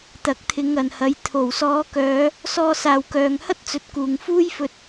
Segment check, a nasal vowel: absent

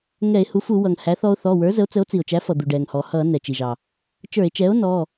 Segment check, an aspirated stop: absent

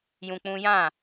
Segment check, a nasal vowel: present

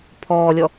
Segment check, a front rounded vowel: absent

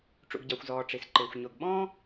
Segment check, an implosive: present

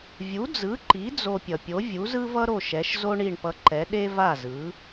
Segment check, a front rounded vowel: absent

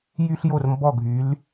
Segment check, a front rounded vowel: present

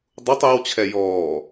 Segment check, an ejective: absent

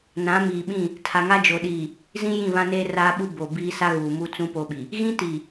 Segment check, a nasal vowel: present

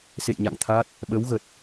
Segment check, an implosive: present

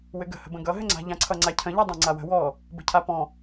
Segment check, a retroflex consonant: absent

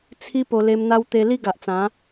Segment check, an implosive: absent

